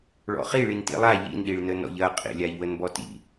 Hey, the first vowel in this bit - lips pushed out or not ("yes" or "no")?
yes